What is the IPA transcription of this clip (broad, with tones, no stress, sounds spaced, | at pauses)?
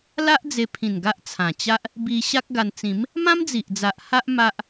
l a˦ ʔ d͡z e˧ pʰ ĩ˨˩ n ɡ a˦ ʔ t͡sʰ ã˨˩ t͡ɕ a˦ ʔ | b i˧ ɕ a˦ k̚ ɡ a˧ n t͡s ĩ˨˦ m | m ã˦ m d͡z i˨ ʔ d͡z a˨ ʔ h a˦ ʔ m a˦ ʔ